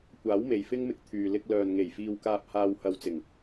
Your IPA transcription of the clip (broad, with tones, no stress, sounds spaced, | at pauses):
kʷ aː˨˥ w m e˨ j f ɪ˥ ŋ m ɪ˧ k̚ t̪ʰ yː˨ l ɪ˧ k̚ l œː˨ n ŋ e˨˩ j f iː˨ w k aː˨ p̚ h aː˨ w h ɐ˧ w t͡s ɪ˨˩ ŋ